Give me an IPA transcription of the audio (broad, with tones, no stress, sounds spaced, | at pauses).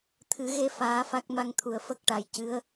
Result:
t̪ʰ ɨ˨˩˦ ɣ e˧ f aː˧˥ f a˦˥ k̚ m a˧ ŋ t̪ʰ u˨˩ ə̯ f ə˦˥ k̚ ʈ a˨˩ j c ɨ˧˥ ə̯